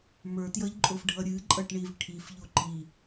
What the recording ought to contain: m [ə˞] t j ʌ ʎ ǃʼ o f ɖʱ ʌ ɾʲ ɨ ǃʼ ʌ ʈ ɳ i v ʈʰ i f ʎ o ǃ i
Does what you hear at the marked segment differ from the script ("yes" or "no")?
no